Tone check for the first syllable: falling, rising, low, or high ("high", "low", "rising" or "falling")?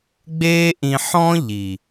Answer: high